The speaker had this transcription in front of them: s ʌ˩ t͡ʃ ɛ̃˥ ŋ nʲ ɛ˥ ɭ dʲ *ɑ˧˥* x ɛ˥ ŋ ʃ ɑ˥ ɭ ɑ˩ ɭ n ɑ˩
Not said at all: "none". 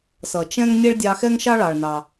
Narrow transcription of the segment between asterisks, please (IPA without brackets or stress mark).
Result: ɑ˧